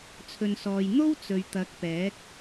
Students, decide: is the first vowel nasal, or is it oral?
oral